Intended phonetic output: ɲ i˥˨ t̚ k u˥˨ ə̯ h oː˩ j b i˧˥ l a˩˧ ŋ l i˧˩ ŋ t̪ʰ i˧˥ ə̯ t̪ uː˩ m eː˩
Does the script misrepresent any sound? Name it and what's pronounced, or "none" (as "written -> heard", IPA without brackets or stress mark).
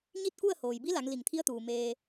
none